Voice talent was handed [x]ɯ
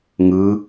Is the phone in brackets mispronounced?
yes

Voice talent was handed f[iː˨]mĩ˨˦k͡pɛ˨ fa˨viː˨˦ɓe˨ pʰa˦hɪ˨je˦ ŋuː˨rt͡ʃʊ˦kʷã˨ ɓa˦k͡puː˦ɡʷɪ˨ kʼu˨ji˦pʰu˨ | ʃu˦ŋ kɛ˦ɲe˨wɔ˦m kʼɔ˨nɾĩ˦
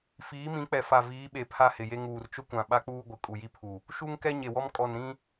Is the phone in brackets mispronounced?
yes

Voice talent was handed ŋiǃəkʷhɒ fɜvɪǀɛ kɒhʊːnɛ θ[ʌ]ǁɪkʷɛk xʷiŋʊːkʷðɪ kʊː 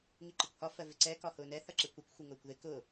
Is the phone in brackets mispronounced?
no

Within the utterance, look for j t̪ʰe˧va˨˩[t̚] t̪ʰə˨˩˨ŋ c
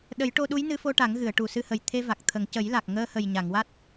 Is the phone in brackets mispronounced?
yes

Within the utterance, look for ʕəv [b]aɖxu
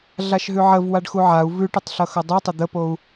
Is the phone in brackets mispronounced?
yes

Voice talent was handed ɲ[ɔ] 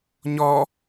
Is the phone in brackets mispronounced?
no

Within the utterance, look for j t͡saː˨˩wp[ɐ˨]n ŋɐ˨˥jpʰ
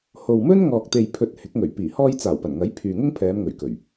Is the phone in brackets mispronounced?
yes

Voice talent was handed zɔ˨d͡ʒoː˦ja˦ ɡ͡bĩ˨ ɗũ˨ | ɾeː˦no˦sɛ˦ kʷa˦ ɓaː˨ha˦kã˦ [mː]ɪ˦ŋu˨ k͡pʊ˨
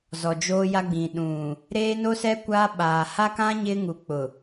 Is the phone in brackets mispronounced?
yes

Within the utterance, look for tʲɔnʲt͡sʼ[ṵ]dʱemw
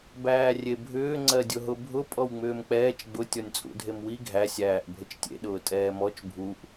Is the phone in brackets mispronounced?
no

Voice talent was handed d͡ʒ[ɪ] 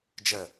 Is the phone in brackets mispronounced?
yes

